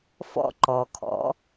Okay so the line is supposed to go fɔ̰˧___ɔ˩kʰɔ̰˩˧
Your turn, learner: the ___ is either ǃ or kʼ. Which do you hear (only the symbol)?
ǃ